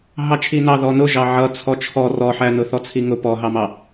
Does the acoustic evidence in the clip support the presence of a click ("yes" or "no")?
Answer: no